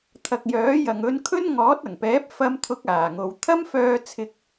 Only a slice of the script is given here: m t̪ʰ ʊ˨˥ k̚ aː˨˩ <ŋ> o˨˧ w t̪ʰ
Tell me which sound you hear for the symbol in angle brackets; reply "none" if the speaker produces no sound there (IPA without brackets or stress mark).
ŋ